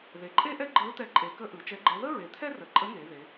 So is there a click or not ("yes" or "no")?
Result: yes